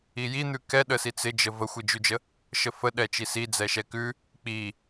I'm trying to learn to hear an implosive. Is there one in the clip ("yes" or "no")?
yes